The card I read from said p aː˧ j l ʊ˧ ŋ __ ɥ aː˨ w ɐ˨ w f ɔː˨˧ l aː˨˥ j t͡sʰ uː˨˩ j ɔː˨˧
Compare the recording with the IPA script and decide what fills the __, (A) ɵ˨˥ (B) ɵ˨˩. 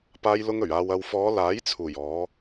B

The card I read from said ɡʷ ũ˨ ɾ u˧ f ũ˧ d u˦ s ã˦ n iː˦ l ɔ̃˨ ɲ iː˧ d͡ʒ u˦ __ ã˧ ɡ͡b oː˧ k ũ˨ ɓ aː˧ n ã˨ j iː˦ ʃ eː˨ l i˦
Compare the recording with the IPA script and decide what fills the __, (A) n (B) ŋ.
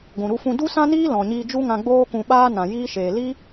B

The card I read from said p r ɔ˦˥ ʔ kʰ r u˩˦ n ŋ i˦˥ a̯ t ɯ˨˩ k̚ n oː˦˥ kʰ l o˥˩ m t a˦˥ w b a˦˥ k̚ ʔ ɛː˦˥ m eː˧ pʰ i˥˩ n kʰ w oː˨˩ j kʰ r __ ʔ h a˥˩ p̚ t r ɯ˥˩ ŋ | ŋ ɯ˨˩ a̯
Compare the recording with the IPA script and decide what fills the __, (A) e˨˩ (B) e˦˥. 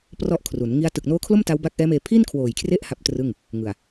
B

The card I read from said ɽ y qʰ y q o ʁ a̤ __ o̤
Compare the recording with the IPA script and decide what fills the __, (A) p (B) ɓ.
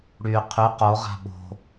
B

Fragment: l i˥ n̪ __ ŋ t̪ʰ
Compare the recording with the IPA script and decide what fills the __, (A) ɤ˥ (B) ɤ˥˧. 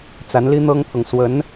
A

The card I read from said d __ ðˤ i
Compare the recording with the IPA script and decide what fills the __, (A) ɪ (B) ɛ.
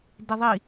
A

